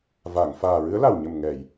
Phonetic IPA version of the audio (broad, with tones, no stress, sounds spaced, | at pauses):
v a˨˩˨ ŋ f aː˨˩ ɹ ɨ˧˥ ə̯ l a˨˩ w ɲ ə˨˩ m ŋ ɛ˨˩˨ j